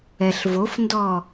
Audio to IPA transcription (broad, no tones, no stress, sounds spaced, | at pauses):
ɛ ɬ v o f n d ɔ